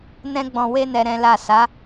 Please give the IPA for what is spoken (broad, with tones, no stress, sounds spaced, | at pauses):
n ɛ̃˧ ɡ͡b ɔ̃˨ w e˧ n ɛ˨ ɾ ɛ̃˨˦ l a˦˨ s a˨˦